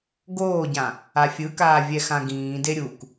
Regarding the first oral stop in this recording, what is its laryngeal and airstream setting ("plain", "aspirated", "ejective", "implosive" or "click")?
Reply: plain